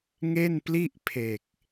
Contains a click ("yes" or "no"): no